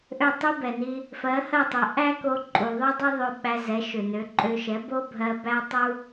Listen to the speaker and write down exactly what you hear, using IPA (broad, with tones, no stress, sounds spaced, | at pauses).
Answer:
ʔ ø˥˩ tˤ u˥ b ɛ˩ n i˧ | f ɜ˩˥ h ɜ˥˩ tˤ i˩ ʔ æ˥ k o˧ ǃʼ u˩ ðˤ ø˥ dˤ ɛ˥ ðˤ ø˧ ɓ æ˧ z ɛ˩˥ ʃ ø˩ n ø˩˥ ǃʼ ø˧ ʃ ɛ˩˥ b o˥ bʱ ɜ˧ b æ˥ tˤ u˥